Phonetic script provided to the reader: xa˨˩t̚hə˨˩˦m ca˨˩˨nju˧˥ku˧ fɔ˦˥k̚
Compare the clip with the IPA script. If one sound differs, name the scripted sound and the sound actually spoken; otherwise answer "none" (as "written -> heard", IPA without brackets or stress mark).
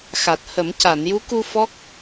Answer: none